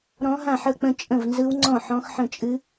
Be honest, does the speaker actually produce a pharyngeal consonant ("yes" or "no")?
yes